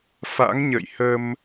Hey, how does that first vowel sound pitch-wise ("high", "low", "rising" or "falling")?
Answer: rising